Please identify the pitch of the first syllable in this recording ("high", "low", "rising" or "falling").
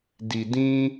low